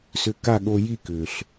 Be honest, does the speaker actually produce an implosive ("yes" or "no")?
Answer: yes